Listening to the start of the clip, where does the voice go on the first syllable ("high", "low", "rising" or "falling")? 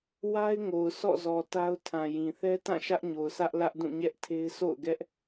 high